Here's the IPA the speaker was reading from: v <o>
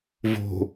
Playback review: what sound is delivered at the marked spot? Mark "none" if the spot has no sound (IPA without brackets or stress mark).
o̤